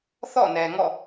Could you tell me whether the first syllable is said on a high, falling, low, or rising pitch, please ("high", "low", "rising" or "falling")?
falling